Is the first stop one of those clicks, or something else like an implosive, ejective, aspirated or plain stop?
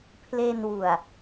aspirated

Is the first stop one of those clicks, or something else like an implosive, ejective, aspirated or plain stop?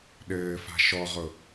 implosive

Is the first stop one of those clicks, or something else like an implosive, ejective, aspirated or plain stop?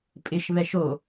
ejective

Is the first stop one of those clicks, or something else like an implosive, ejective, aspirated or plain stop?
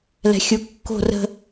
plain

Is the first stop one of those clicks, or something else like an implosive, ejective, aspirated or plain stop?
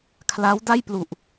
aspirated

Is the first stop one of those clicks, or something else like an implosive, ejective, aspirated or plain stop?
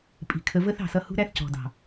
ejective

